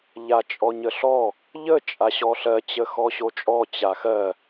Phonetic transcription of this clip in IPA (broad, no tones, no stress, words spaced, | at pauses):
ʎat͡ʃʼɔɲəɬɔ | ʎə t͡ʃʼaɕɔɬɜ t͡ɕəxɔɕot͡ʃʼɔ t͡ɕaxɜ